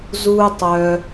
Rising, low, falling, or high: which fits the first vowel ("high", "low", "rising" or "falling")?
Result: high